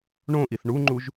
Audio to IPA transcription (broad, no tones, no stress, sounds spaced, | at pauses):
ɳ õ ʔ i θ ɳ u ŋ͡ǃ u ʒ